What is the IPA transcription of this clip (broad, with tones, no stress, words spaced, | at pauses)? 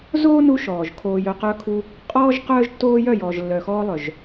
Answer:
zoː˦nu˧ ʃɔː˨ʒ kʰoː˧jœ˧qœ˦kʰu˦ | qʼɔː˦ʒ qœː˦ʒtːoː˦ jœ˦˨jɔː˨ʒlːœ˨xɔː˧ lˠœ˨ʒ